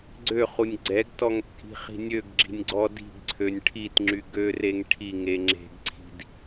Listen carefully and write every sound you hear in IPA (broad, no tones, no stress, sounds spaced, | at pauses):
ɡ͡ǀ ø χ u nʲ ɡ͡ǀ ɛ ɡ t ɔ ŋ t͡sʼ i̤ χ i̤ nʲ ø ɡ ɡ͡ǁ i̤ nʲ ɡ͡ǀ ɔ d i̤ ɡ ǀʰ ø nʲ ʈʰ i t ŋ͡ǁ y ɡ ø r e ŋ ʈʰ i ŋ e ŋ͡ǁ e̤ ɡ ǀʰ i̤ d